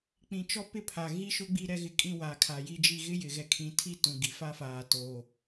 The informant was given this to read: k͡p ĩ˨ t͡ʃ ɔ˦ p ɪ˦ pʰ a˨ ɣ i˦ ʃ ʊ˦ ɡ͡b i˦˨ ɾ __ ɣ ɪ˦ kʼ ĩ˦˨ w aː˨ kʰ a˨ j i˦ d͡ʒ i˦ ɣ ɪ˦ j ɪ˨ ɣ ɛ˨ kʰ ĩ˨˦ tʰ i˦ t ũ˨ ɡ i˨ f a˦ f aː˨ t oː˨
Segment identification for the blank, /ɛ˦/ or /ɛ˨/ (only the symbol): ɛ˦